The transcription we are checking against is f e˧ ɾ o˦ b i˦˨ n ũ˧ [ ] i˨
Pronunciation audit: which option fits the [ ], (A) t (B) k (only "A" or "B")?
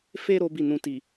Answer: A